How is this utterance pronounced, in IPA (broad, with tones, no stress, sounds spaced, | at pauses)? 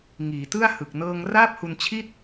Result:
ŋ iː˩˦ t ɯ˥˩ a̯ h ɯ˨˩ k̚ n ɤː˧ ŋ r aː˥˩ p̚ h u˧ n t͡ɕʰ i˥˩ t̚